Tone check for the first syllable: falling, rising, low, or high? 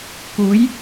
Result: rising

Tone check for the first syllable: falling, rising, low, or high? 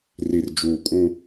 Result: low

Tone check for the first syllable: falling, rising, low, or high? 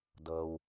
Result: low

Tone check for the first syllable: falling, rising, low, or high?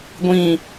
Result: falling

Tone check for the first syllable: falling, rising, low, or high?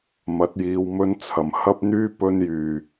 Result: rising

